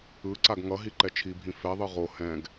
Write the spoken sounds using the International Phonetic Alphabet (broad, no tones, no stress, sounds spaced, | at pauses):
ɯ ǀ a ɡ ŋ ʌ ɦ i ǃ ɛ t͡ʃʰ i bʱ ĩ f ɛ ðˤ ɯ ʁ o h ɛ̃ ɡ